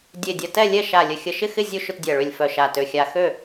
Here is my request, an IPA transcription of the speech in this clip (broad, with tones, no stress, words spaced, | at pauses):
dʲe˧˩dʲœ˧˩tɛ˥˨lʲɛ˥˨ ʃa˧˩lʲə˧˩ xʲə˧˩ʃɪ˥˨xɪ˥˨ zʲʊ˥˨ʃʊ˥˨tdʲɛ˧˩ ɭʏ˧˩lʲfœ˧˩ʃa˧˩tø˧˩ xʲa˧˩xø˥˨